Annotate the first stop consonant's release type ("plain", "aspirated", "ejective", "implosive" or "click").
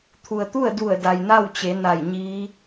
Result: aspirated